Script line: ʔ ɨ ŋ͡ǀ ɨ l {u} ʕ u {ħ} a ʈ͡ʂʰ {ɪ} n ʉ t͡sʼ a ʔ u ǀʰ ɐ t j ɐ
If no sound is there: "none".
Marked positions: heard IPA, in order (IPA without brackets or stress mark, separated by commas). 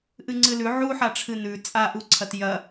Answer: ʉ, ħ, ɨ